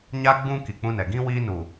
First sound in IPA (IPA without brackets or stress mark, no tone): ɲ